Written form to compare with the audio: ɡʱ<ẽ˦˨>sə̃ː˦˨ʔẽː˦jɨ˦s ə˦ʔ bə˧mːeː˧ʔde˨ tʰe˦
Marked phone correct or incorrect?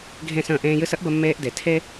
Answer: correct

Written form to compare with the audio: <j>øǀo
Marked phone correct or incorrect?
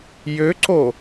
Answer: correct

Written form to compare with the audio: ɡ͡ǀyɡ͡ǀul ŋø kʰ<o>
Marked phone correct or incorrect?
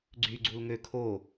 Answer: correct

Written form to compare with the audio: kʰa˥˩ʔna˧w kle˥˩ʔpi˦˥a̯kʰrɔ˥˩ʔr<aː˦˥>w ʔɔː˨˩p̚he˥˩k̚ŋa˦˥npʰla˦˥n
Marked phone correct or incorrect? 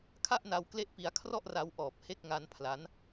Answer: incorrect: a˦˥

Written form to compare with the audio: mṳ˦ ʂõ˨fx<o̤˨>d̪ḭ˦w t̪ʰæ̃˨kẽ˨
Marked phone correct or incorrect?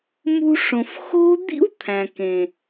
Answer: incorrect: o̤˦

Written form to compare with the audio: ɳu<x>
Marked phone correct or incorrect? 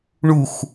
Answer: correct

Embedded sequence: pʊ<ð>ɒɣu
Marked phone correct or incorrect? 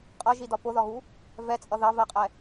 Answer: correct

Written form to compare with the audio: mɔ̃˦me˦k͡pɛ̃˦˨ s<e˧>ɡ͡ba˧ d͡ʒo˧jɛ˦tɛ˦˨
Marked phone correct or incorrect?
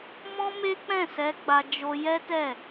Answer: incorrect: ɛ˧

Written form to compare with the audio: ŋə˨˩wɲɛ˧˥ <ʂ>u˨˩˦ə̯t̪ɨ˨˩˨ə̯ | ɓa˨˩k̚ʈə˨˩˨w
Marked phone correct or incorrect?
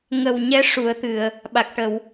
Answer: correct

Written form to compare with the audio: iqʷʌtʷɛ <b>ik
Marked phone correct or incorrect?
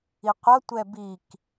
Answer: correct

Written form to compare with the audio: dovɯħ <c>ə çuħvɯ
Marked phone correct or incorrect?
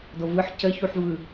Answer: correct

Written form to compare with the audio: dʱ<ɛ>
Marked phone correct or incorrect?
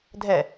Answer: correct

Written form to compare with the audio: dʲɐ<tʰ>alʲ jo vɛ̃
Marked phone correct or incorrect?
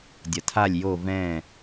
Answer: correct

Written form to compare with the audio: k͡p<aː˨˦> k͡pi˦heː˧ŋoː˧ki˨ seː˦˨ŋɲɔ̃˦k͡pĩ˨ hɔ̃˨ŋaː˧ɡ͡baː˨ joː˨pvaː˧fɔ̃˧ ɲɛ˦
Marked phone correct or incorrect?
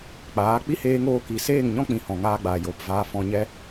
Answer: correct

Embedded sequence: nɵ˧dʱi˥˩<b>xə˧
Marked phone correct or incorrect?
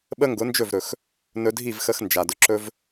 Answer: incorrect: v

